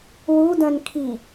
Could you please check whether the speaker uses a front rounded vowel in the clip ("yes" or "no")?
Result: yes